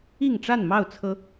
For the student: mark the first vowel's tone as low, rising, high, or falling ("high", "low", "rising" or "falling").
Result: falling